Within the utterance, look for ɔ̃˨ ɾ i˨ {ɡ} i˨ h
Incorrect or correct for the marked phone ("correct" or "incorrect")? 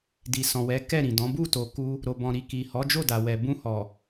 incorrect